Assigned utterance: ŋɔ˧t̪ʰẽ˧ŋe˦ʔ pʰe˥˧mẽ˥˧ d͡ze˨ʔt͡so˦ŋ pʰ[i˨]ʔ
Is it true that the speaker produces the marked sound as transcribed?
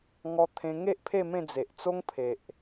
no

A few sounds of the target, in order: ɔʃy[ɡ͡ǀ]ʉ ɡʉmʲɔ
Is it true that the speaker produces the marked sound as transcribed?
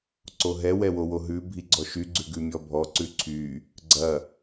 yes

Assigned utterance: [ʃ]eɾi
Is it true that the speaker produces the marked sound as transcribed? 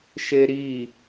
yes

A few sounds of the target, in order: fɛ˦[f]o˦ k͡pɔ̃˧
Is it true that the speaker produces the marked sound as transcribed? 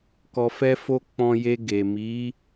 yes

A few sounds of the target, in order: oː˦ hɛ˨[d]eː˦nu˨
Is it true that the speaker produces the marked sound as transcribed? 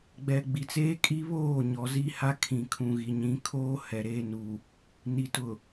no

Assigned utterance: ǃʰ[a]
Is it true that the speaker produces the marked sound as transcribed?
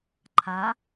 yes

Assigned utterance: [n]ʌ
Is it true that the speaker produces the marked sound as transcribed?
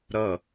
no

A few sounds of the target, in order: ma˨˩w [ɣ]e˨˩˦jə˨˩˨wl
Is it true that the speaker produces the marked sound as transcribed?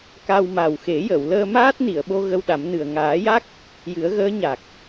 no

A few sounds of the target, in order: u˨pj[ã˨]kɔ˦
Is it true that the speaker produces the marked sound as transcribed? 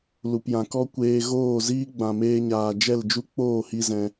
yes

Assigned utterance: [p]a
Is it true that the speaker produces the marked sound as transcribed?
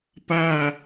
yes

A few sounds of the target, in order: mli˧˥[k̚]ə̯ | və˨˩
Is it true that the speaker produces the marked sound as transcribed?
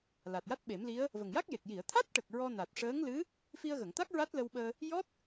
no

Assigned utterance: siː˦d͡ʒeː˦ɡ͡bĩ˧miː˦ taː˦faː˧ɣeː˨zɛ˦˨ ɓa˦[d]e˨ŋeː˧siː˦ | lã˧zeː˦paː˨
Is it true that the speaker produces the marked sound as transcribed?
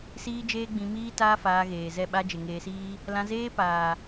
no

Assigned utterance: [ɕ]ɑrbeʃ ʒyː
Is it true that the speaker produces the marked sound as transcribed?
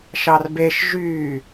no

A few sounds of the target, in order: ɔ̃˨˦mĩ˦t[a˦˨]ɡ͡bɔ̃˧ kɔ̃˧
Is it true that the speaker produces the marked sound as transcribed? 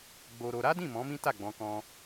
yes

